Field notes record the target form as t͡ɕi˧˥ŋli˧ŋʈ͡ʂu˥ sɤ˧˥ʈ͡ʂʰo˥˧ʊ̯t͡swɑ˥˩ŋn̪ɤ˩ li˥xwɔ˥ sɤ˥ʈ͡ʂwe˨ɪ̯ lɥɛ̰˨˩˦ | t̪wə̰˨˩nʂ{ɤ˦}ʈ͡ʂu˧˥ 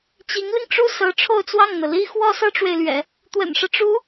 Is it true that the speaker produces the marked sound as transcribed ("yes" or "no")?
yes